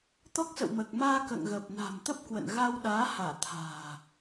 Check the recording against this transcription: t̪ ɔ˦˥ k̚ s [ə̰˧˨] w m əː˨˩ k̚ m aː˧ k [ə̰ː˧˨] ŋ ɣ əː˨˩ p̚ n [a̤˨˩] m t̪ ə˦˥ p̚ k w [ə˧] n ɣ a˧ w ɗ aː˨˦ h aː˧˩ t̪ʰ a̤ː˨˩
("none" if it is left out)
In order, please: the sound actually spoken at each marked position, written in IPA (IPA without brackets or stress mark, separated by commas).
ə̰˧˨, ə̰ː˧˨, a̤˨˩, ə̰˧˨